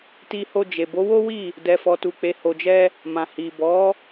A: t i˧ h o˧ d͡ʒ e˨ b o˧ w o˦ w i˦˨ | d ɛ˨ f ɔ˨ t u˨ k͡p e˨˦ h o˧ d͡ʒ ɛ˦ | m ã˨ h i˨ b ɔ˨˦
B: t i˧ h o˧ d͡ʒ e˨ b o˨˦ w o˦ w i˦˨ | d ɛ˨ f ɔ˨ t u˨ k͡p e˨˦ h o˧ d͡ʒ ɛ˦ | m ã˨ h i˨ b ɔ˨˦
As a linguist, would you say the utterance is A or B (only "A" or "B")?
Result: B